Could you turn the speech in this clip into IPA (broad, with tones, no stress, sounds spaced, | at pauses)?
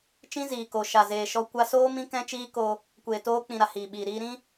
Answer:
t͡ʃ ĩ˦ z iː˨ k o˨ ʃ a˨ z eː˨ ʃ ɔ˧ kʷ a˧ s oː˦ m ĩ˦ k ɛ̃˦ t͡ʃ iː˦ k o˧ | kʷ eː˨ t oː˧ k͡p ĩ˨ ɾ a˨ h iː˨ ɓ iː˨ ɾ iː˧ ɾ ĩ˦